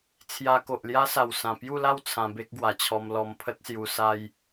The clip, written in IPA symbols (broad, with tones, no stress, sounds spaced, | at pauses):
t͡sʰ j a˧ k o˨ ʔ l j a˦ s a˨˩ w s ã˨˩ p j u˥˧ l a˥˧ w t͡sʰ ã˧ b e˦ k̚ ɡ w a˨˩ t͡ɕʰ ɔ˧ m l ɔ˧ m pʰ ə˦ t̚ s j u˧ s a˧ j